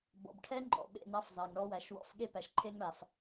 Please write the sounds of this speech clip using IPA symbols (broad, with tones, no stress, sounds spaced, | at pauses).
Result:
b ɔ̰˨ b ʈʰ ɛ˦ ŋ͡ǃ ɔ̰˨ ɓ ḛ˦˨ n ɑ˦ f z ɑ˨ ŋ ɳ ɔ˦ w æ˨ ʃ w ɔ̰˦ f ɠ e˦ p æ˨ ʃ ǃʰ e˦ ŋ ɳ a˨ f